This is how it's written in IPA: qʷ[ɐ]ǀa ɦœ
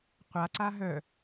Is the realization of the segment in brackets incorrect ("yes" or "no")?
yes